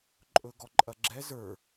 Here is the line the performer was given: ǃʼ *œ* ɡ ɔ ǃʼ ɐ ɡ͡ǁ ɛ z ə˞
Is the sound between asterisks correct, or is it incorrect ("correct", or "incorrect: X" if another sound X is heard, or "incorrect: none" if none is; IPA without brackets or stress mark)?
incorrect: ɵ